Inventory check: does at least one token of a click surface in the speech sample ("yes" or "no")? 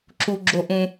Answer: yes